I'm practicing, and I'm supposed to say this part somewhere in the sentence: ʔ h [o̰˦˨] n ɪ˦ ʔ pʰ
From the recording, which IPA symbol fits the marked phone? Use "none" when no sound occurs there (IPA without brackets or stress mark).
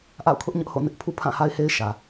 o̰˦˨